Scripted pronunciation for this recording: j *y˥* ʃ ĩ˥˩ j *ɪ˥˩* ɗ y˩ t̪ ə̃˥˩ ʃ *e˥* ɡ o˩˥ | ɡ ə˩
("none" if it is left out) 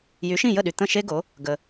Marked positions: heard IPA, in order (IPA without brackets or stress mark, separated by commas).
y˩˥, ə˥˩, e˥